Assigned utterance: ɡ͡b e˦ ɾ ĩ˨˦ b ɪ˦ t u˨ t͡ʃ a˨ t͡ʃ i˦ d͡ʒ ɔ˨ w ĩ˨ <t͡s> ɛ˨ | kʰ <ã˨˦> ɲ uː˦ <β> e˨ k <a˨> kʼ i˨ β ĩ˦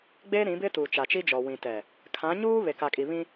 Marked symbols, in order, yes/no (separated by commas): no, yes, yes, yes